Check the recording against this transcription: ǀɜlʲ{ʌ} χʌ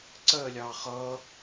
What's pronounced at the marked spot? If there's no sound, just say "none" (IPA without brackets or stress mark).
ɑ